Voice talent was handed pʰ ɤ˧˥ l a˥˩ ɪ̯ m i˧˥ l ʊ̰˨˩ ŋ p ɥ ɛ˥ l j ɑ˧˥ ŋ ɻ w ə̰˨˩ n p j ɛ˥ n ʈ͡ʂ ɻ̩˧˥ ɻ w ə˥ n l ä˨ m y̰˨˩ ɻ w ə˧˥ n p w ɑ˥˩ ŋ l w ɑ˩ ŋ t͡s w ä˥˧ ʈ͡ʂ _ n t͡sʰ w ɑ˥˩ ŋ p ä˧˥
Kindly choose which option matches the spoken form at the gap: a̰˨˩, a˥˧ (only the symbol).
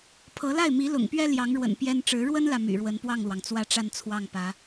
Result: a˥˧